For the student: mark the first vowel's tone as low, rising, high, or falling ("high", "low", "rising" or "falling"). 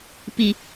low